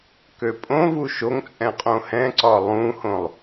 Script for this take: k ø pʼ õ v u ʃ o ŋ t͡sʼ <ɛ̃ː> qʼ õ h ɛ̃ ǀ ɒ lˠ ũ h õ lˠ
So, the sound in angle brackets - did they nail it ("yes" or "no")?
no